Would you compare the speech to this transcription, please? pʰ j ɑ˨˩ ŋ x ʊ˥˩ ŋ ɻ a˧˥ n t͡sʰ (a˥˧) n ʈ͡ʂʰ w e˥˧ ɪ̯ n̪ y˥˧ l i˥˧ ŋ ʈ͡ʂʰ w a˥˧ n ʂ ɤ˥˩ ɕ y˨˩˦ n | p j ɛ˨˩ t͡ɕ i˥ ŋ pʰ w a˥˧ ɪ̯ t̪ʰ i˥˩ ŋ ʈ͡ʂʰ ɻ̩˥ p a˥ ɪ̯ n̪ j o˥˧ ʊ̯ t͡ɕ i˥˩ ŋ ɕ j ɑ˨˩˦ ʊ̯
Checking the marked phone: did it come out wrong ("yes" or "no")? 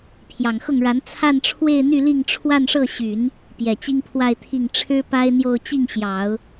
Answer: no